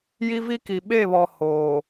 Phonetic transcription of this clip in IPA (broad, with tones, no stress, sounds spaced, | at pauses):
j i˦ v i˦ k i˨ ɓ e˦˨ β ɔ˨ h oː˨